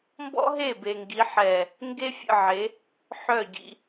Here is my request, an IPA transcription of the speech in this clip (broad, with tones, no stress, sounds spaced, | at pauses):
m b ɔ̰˦ ɦ e˦˨ b e˨ ŋ ɡ i˨˦ ħ ɛ˨ | ŋ ɡ e˦ fʲ ə̰˦˨ ʕ e˨˦ | ħ œ˦˨ ɟ ḭ˦